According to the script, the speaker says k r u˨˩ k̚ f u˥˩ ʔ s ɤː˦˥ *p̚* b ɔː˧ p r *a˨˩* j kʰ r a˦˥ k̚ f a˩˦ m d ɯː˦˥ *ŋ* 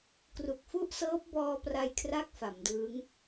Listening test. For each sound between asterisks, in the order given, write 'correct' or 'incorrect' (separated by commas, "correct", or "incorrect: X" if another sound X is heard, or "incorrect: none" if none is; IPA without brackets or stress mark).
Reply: correct, incorrect: a˧, correct